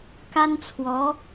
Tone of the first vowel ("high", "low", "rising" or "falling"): high